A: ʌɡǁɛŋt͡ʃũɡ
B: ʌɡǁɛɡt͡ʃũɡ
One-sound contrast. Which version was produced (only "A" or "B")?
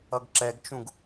B